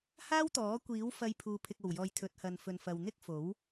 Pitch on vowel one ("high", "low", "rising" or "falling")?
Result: high